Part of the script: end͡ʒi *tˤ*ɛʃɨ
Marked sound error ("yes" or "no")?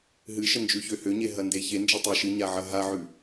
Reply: no